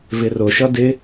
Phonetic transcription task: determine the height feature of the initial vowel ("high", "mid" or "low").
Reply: high